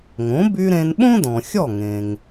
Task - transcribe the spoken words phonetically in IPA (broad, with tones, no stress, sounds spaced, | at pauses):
ŋ õ˩˥ b y˧ ɾ ẽ˧ n ɓ õ˥ d ɔ̃˩ xʲ ɔ˥˩ ŋ ẽ˩ ŋ